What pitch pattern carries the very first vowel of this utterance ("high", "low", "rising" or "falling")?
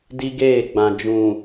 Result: high